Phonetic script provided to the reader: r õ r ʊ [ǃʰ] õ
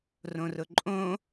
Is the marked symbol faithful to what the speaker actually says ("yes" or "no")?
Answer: no